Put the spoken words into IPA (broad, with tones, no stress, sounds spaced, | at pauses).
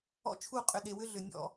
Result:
ɔ̰˦ t͡ʃʰ u˦˨ qʼ ʏ˨ ɗ e˨ w ʏ˦ ɮ ʏ˨ nʲ ɔ̰˦˨